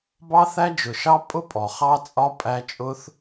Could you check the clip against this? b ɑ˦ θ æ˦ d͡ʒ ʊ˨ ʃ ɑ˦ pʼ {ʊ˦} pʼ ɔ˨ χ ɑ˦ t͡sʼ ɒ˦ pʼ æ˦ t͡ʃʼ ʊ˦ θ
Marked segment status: correct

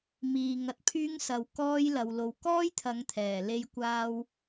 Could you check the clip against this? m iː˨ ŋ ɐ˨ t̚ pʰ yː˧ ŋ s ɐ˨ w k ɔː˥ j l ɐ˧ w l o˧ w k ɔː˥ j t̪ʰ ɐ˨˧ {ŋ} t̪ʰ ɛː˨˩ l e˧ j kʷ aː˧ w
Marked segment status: correct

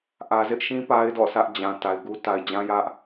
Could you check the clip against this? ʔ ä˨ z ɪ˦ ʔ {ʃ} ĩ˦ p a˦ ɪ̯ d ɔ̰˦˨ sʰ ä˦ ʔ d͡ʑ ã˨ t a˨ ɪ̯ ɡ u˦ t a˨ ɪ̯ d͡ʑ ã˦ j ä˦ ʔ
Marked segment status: correct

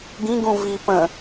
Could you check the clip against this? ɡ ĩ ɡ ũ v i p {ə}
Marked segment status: incorrect: ə̃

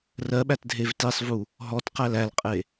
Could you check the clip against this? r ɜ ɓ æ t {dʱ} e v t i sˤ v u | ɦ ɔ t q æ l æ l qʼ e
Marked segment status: correct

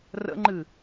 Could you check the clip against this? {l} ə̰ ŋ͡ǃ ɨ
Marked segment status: incorrect: r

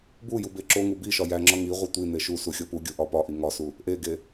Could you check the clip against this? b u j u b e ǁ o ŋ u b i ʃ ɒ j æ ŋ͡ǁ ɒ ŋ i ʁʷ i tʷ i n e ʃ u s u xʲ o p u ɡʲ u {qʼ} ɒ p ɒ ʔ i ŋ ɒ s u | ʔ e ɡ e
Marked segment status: incorrect: ʔ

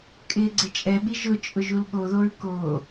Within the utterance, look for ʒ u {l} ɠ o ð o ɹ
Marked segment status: correct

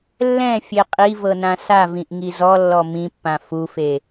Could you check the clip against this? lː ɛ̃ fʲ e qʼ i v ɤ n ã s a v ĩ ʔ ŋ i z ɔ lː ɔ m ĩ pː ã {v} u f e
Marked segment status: incorrect: f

